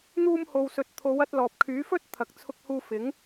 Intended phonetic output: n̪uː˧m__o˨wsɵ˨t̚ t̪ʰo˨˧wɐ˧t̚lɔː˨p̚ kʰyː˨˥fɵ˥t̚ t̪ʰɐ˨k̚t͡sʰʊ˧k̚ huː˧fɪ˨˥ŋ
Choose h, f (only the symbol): h